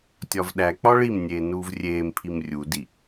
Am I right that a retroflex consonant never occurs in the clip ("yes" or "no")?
no